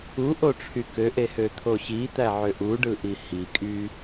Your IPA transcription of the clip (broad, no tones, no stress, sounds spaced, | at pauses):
u ʔ o ʈ͡ʂʰ y k ø ʔ e h ø t̪ʰ o ɕ i t̪ æ ʕ ø ʔ u ɖ ɯ ʔ i h i kʼ y